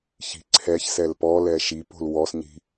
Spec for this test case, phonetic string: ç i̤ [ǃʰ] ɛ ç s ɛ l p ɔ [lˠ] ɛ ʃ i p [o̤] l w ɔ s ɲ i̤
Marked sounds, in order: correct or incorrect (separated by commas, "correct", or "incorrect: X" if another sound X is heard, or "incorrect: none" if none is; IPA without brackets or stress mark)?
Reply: incorrect: ǀʰ, incorrect: l, correct